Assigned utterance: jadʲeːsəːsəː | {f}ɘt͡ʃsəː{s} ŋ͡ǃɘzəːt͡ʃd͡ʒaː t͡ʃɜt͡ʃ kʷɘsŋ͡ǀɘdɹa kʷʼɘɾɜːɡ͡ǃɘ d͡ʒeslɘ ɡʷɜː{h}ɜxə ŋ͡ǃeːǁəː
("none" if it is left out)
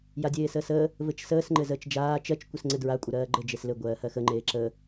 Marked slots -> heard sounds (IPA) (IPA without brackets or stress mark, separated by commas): v, s, h